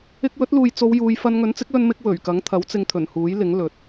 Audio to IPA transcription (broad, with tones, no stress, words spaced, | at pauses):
ɪ˧k̚wɵ˨˥t̚luː˨jt͡so˨˧w juː˨˧jfɐ˧n ŋɵ˨˥nt͡sɪ˨˥k̚lɵ˧nmɪ˧k̚ wɵ˨˩ɥkɐ˨˥ŋ t̪ʰɐ˨˥wt͡sɪ˧ŋt̪ʰɵ˨˩n huː˨˥jlɪ˨˥ŋ lɵ˨˥t̚